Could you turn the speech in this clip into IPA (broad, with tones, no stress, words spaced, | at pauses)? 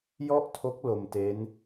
jɔ˥˩ʔtʰo˦˥k̚ lo˧mte˦˥n